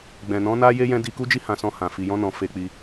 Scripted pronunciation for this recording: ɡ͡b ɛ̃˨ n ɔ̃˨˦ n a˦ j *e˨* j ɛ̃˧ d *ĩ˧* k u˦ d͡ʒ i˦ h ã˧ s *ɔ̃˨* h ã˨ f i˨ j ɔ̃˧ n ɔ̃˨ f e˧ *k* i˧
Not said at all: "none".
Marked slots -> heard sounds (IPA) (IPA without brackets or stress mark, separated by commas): e˧, i˧, ɔ̃˧, k͡p